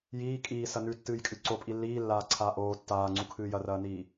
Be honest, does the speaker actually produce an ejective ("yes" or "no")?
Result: yes